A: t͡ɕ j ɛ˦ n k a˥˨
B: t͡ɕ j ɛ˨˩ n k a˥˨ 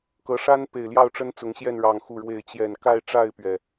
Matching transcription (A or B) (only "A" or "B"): B